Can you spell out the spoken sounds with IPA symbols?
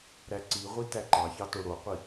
ɾ æ ǀ i ʁʷ i t æ ǃ ɑ ç ɑ t o ɽ o qʷ i

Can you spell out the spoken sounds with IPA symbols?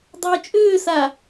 dˤ ʏː t͡ʃʼ ʏː s a

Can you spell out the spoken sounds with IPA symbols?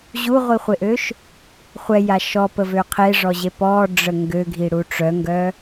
ʑ u ʁʷ i χʷ e ʔ ø ʃ | χʷ ɛ j a ʃ ɔ p ə v ø qʰ e ʐ ɔ ʑ e p ɔ ɖ͡ʐ ə ŋ ɡ ø ɡʱ i ɽ u ʈ͡ʂ œ ŋ ɡ œ

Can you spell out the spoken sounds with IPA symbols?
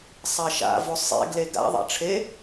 sˤ a ʃ a̰ v o sˤ ḛ ɡ l e ɡ a̰ ðˤ a̰ ʈ͡ʂʰ e

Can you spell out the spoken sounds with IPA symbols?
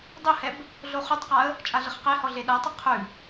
dˤ ɵ h ɛ b | ɮ o χ ʉ tˤ q a ə̯ | t͡ʃʼ a ɮ ə χ q e h ɔ ɮ e ɗ a tˤ ə qʰ ʉ

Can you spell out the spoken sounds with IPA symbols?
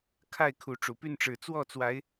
kʰ a˥˨ ɪ̯ kʰ u˨˦ ʈ͡ʂ u˨˩ p y˥˨ n ʈ͡ʂ ɻ̩˨˩ t͡s w ɔ˥˨ t͡s w a˨˦ ɪ̯

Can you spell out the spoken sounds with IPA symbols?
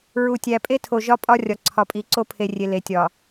ɹ u˨ tʲ æ˨ pʼ e˦ tʰ o˨ ʒ ɒ˦ pʼ ɒ˦ rʲ ɒ˨ ǀʰ ɒ˨ pʼ i˨ ǀ o˦ pʰ e˨ rʲ e˨ l e˨˦ tʲ ɒ˨

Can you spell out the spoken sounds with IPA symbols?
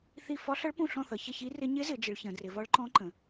θ i˦˨ f ɒ˧˥ ɬ ʌ˧˥ ɭ p ũ˦˨ ɬ ɔ̃˦˨ θ ʌ˩˧ ç ɪ˦˨ ç i˧˥ r ɪ˧˥ ɲ ɪ˧˥ z ɪ˩˧ d͡ʒ ɪ˩˧ ɭ ç ə̃˩˧ d r ɪ˩˧ v ɒ˧˥ ɭ ǃ ɔ̃˧˥ ǃ ə̃˩˧

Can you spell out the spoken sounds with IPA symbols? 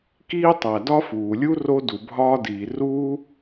k iː˥ tˤ æ˩ d ɒ˥ f uː˩ lʲ u˥ r o˥ d u˩ bʱ ɒː˥ d iː˩ r uː˥

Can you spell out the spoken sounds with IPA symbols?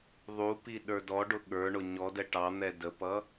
ðˤ u p i ɗ ə˞ d ɔ ɖ ʊ ɠ ə˞ ɳ ʊ ɲ ɔ d ɛ ʈ ɑ n̪ ɛ d ə p ʌ

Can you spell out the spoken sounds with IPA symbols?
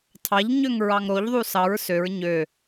tʰ ɑ ʎ ɲ ø ŋ ɹ ɑ ŋ ɾ o ʎ ðˤ u s ɑ ɹ s ø ɹ ɲ ø

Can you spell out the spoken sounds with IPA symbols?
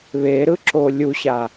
β e ɾ ɯ ǁ o lʲ u ɕ a

